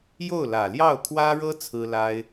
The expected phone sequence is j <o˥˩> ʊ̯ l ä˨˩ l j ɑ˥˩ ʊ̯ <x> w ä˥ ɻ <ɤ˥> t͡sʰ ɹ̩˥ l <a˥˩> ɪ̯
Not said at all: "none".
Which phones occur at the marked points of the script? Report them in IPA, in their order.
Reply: o˥˩, kʰ, ɤ˥, a˥

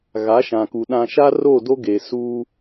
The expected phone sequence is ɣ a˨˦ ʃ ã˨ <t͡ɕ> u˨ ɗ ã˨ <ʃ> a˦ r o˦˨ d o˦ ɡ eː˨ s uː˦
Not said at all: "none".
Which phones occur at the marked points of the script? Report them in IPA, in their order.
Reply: k, ʃ

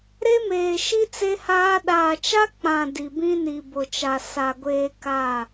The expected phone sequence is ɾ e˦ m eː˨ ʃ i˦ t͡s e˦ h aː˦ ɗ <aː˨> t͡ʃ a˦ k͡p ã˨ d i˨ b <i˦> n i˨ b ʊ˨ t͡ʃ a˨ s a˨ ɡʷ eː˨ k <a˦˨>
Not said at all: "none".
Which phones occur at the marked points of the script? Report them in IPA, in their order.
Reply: aː˨, ĩ˦, a˦˨

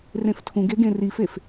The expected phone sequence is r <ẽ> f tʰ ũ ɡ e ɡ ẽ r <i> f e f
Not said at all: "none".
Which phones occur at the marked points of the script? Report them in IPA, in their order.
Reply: ẽ, i

